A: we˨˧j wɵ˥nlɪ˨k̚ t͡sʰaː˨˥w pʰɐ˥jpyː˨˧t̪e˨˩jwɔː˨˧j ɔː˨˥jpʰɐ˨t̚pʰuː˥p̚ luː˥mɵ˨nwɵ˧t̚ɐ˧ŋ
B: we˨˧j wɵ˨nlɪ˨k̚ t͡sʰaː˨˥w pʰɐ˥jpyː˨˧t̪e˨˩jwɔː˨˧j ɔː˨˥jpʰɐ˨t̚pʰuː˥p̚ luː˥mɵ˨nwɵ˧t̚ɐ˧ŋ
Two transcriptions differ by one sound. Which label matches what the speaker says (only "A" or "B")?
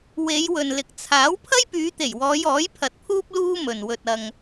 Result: B